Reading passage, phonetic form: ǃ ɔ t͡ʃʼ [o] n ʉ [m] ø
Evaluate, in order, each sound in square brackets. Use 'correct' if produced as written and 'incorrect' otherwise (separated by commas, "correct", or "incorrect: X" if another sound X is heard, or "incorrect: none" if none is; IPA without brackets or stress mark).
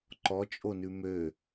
correct, correct